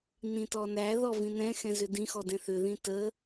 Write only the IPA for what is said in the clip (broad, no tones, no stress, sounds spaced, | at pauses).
n ĩ t ɔ n æ ð ɔ v ĩ n ɛ̃ x ɛ̃ z ʏ d ĩ x ɔ d ɛ̃ θ ʏ ð ĩ t ə